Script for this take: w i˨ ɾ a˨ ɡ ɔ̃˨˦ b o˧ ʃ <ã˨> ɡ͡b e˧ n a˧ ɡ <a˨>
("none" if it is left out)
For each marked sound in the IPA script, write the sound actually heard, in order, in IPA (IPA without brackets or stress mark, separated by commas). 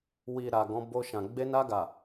ã˨, a˨